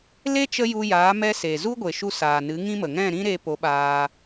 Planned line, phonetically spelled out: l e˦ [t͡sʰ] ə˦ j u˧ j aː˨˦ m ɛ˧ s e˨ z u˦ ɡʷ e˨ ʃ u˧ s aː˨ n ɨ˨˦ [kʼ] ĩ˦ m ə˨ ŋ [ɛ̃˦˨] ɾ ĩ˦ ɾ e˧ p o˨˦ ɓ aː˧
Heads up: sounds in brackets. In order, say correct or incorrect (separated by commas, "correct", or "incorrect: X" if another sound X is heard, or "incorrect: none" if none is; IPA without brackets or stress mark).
incorrect: t͡ʃ, incorrect: ŋ, correct